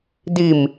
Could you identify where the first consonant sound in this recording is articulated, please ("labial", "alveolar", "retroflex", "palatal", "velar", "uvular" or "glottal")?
alveolar